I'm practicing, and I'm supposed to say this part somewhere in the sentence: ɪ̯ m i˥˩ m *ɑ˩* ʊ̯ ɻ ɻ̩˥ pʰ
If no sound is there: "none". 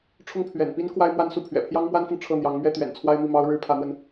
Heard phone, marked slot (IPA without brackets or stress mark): ɑ˥